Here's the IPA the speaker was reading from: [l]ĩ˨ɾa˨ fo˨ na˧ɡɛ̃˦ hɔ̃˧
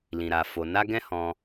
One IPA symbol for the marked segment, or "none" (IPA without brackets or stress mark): l